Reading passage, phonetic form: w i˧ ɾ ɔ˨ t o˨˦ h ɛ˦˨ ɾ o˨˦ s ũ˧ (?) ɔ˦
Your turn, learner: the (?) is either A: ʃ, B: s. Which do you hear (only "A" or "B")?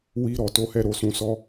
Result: B